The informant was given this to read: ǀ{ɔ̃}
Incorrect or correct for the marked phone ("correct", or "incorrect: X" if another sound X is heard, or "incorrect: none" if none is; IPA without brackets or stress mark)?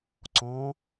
correct